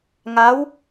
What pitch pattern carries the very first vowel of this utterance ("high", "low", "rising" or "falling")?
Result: rising